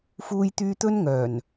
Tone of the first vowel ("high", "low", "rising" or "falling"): high